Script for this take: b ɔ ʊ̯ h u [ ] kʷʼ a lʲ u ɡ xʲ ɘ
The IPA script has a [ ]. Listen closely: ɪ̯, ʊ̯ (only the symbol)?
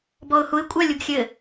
ɪ̯